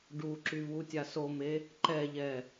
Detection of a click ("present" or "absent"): present